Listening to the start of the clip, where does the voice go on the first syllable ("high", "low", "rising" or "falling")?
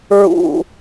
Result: low